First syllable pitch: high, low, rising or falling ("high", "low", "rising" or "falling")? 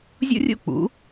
high